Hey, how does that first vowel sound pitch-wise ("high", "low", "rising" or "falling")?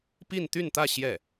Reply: falling